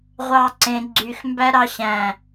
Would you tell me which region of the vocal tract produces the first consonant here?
uvula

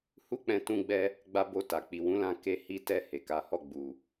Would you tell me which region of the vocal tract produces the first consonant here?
throat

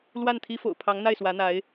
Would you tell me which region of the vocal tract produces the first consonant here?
tongue tip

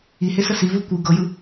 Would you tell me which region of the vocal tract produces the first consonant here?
throat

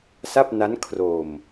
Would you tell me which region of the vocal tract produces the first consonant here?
tongue tip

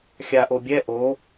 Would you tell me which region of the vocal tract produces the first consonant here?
velum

